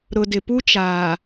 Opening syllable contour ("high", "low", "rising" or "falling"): low